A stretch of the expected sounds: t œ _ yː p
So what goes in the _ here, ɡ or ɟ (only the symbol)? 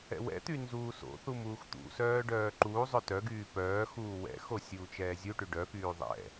ɡ